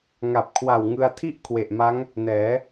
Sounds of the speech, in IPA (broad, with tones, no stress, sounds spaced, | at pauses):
ŋ a˨˩ p̚ kʰ w a˨˩ w ŋ ɯ˧ a̯ tʰ i˥˩ ʔ kʰ w e˨˩ ʔ m a˦˥ ŋ | n ɛː˩˦